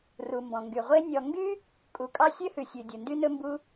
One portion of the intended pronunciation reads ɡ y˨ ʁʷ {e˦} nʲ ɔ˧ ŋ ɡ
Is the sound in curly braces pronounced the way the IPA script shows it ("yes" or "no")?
yes